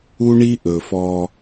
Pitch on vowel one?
high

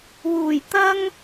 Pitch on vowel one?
low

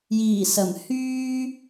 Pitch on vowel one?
low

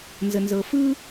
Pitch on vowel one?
low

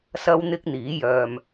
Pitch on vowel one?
high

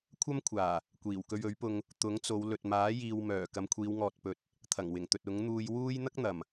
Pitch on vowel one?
high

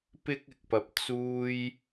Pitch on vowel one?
high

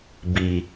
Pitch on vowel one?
low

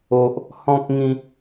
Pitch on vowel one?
high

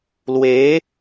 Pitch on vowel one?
rising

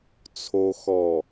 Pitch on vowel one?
low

